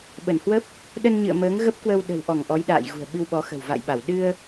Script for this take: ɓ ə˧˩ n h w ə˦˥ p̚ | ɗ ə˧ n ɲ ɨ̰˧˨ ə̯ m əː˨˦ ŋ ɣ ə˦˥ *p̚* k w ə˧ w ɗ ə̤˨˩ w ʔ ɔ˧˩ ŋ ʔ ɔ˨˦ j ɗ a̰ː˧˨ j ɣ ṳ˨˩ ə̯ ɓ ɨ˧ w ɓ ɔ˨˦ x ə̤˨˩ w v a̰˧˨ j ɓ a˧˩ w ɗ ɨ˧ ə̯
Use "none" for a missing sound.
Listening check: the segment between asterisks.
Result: p̚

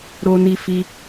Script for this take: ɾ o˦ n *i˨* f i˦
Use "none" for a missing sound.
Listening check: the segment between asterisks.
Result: i˦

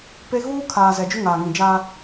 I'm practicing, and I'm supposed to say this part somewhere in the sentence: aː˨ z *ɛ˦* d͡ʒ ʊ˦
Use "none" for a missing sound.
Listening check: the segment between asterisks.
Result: ɛ˨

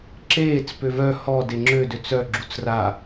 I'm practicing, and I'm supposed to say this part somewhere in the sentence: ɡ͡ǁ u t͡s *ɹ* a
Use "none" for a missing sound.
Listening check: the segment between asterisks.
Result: r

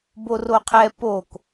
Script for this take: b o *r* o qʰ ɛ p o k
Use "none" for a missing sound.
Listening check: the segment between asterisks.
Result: r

